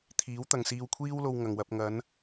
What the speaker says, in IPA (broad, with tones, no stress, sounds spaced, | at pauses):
t̪ʰ iː˨˥ w t̪ ɐ˨ ŋ s iː˧ w kʷʰ iː˥ w l o˧ w ŋ ɐ˨ ŋ w ɐ˧ p̚ ŋ ɐ˨˧ n